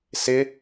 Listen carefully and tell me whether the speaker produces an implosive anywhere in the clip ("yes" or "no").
no